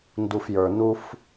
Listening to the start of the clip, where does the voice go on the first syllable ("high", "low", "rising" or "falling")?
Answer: low